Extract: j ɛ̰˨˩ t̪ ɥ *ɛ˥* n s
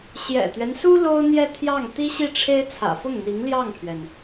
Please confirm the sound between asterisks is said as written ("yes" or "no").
no